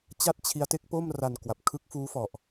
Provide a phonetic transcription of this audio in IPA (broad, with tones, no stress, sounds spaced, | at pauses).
t͡ɕ a˥˩ t̚ t͡ɕʰ i˦˥ a̯ t e˦˥ k̚ p o˥˩ m r a˧ n k w a˨˩ p̚ kʰ ɯ˦˥ k̚ f uː˦˥ f ɔ˨˩ ʔ